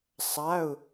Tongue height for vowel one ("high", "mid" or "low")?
low